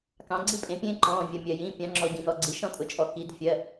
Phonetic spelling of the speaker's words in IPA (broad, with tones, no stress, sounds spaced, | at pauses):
k ɑ̃˩˧ ɡ͡ǀ i˦ pʼ ẽ˩˧ pʲ ẽː˦ ǃ ɔ̃ː˩˧˩ vʲ ɜ˩ mʲ ɜ˩ j ĩ˩˧˩ pʲ ɑ̃˩˧ ŋ͡ǁ ɔ˩ ɟ ĩ˩ n ɔ˩˧ ɡ͡ǀ i˩˧ ʃ ɔ̃˦ tʼ ʊ˩ t͡ʃʼ ɔ˩ k i˩˧ d fʲ ɜ˩˧˩